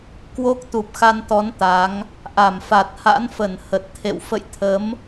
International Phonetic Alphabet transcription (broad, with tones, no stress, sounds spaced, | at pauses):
k w o˦˥ k̚ t̪ u˨˩ p̚ x a˧ n t̪ ɔ˨˦ n t̪ a˨˦ ŋ | ʔ a˧˩ m f a˨˩ t̚ h a̰˧˥ n f ə˧˩ n h ə˨˩ t̚ t̪ʰ ḛ˧˨ w f ə̰˧˨ j t̪ʰ ə˨˦ m